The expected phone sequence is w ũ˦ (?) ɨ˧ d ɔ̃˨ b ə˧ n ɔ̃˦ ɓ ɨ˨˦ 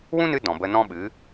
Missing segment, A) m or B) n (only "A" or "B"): B